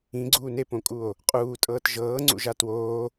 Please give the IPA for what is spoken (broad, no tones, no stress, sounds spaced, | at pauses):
ĩ ɡ͡ǀ uː n e p õ kʼ u o̯ | qʼ uː tʼ ɤː t ʒ ɤː ŋ͡ǀ ṵ ʒ a t w oː